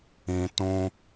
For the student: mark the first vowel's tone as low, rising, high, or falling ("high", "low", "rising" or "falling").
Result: low